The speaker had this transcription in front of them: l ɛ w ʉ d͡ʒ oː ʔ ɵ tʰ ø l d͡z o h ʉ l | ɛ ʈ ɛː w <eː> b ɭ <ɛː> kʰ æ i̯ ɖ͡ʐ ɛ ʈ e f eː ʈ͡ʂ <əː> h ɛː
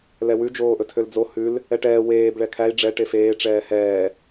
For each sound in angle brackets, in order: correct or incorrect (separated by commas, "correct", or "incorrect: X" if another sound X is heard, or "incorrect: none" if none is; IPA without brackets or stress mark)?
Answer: correct, incorrect: ɛ, incorrect: ɛː